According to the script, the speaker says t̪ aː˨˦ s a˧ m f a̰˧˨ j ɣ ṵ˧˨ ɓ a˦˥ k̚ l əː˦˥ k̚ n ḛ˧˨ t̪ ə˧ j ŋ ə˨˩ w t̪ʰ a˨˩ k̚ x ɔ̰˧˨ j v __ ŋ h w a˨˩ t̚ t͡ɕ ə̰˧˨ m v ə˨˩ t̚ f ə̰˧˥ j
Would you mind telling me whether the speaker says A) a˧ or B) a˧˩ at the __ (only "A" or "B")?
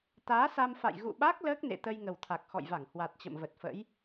B